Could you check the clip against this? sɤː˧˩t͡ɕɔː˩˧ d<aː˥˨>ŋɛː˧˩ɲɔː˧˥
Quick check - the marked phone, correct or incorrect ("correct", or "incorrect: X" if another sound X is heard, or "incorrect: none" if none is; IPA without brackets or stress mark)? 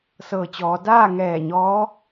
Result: correct